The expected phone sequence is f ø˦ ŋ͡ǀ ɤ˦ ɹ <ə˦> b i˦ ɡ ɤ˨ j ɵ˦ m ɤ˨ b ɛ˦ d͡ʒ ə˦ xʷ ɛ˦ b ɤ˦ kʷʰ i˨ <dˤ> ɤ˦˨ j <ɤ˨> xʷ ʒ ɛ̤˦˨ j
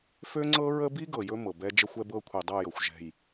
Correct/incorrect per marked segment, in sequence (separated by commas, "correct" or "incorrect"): correct, correct, correct